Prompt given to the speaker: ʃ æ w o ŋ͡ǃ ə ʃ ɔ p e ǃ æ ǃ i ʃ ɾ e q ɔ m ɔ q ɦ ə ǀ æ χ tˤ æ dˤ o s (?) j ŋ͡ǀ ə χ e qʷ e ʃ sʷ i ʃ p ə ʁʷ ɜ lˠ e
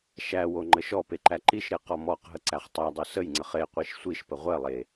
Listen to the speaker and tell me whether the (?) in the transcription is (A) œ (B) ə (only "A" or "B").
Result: B